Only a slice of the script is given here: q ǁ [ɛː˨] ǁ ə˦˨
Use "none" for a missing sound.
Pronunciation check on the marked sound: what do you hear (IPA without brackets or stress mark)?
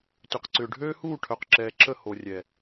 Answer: ɛː˨